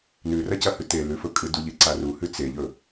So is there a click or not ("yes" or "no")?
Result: yes